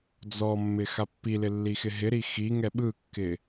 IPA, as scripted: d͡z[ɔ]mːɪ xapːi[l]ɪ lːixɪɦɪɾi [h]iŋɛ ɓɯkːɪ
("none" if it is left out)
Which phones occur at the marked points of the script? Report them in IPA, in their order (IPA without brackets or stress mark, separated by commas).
ɔ, l, x